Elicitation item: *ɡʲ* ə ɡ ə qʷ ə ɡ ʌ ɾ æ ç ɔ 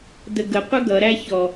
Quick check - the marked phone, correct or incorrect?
incorrect